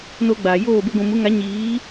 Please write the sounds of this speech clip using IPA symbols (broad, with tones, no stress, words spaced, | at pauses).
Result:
noː˧ɡ͡baː˨joː˦˨ be˧ɡʷũ˨mu˨˦ ŋa˨˦ ɲiː˨˦